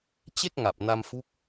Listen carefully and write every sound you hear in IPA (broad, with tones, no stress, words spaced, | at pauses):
t͡ɕe˥˩k̚ŋa˨˩p̚ na˧mfu˦˥k̚